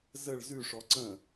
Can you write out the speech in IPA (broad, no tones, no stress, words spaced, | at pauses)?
zəɭ zʉʂɔ ǀə̃